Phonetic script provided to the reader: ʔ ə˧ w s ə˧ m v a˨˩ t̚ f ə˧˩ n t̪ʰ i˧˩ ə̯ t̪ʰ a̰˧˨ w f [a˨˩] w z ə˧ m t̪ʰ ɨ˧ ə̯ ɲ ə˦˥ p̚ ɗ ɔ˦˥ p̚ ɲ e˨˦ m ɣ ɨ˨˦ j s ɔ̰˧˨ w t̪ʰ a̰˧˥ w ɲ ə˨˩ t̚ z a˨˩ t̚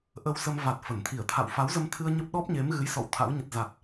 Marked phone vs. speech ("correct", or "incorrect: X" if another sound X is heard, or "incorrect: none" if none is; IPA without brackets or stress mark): incorrect: a˨˦